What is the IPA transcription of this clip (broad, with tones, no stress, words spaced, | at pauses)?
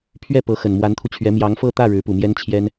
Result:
pʰɥɛ˥˩ pɤ˧˥xə˨˩n mwa˧˥nt̪ʰu˧t͡ɕʰɥɛ˧˥ mjɑ˧˥ŋfɤ˥˧t̪ä˥˩ ɻɻ̩˧˥pu˨˩mjɛ˥nt͡ɕʰjɛ˥n